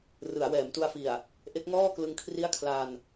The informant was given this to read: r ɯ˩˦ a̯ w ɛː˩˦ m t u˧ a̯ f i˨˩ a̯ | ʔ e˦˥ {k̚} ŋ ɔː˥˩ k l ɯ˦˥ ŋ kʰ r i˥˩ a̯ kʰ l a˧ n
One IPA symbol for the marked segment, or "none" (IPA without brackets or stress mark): k̚